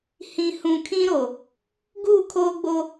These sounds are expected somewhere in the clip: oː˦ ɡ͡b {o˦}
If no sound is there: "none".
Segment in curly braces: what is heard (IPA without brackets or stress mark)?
o˦